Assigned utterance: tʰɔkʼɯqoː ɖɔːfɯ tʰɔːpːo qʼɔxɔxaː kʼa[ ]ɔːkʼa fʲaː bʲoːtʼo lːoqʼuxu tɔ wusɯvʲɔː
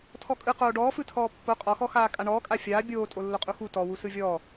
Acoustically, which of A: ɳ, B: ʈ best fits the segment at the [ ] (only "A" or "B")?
A